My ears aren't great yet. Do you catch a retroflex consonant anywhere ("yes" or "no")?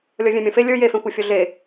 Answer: no